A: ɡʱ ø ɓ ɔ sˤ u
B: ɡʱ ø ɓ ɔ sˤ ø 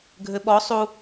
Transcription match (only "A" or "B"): A